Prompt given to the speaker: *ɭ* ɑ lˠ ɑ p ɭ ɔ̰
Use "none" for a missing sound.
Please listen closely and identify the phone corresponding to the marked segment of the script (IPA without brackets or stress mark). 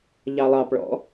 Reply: ʎ